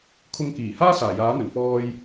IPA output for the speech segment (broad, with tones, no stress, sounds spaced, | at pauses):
kʰ ʊ˧ ŋ k iː˨˩ h aː˥ s aː˨˩ j aː˨˥ n̪ ɵ˨˩ n f ɔː˧ j